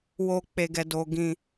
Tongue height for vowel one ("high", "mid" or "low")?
mid